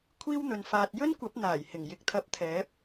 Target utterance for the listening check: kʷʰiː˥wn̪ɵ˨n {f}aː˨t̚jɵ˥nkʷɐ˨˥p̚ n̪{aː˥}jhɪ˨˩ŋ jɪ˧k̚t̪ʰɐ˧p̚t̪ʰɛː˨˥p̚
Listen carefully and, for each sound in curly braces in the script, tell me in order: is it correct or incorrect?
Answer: correct, incorrect

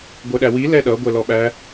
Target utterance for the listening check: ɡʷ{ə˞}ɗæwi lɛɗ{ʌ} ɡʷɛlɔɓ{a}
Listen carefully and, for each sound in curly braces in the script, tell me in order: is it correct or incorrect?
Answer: correct, correct, incorrect

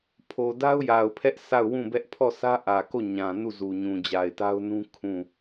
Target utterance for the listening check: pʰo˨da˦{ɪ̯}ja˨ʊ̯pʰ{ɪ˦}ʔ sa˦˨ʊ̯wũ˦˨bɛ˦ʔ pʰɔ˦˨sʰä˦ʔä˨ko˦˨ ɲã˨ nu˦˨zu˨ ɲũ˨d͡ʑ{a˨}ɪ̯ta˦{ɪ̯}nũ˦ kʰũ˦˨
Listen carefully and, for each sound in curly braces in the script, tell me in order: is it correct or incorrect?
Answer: incorrect, incorrect, correct, incorrect

